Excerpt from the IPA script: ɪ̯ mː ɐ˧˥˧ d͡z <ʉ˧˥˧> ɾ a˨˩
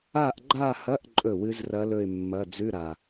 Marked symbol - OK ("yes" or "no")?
yes